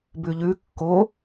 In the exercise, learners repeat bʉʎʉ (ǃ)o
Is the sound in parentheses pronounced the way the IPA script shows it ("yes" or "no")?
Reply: no